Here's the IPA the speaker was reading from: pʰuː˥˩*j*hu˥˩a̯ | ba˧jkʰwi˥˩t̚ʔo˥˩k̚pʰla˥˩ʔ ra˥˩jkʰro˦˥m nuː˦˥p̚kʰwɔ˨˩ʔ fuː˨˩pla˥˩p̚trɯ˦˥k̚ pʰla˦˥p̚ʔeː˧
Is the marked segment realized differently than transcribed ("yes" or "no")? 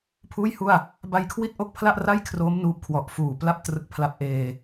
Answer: no